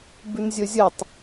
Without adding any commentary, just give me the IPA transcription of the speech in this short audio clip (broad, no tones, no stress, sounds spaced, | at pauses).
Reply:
b ʉ n zʲ ɵ zʲ ɘ tˤ